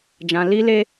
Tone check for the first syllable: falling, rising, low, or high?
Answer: low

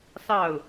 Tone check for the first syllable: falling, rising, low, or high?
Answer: falling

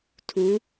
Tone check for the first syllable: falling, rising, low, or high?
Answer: rising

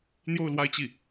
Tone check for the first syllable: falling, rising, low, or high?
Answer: falling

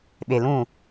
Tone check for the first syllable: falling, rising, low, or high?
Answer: low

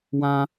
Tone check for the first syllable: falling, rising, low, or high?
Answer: high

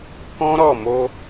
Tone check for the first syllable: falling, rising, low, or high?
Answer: high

